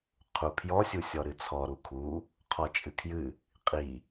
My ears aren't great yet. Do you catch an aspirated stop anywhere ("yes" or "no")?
yes